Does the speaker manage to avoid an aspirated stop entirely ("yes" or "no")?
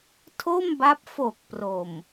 no